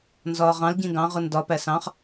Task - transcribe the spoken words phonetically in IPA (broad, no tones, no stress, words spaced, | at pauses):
nzɒːʁɑ̃l ɟĩɡɑ̃ ʁʊndɒ pæsɑ̃χ